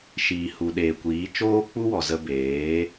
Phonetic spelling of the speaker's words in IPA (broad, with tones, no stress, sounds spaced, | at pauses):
ʃ iː˨ h u˨ ɗ eː˨ kʷ iː˨˦ t͡ʃ oː˦ k͡p u˦ w ɔ˨ z ə˧ b eː˨˦